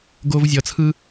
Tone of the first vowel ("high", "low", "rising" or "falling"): high